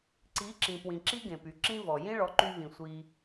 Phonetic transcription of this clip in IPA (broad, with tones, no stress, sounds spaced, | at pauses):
ǀ i˨˦ ǁ ĩ˨ p w ĩ˨ ǁ i˦ ɡ ẽ˨ p y˨ ǁ ĩ˦ v ɔ˨ j ĩ˦ ɭ ɔ˨˦ ǃ y˧ v ĩ˨ sʷ i˧